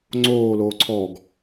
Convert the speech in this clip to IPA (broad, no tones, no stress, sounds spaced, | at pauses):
ŋ͡ǀ oː l oː ǀʰ ɔ ɡ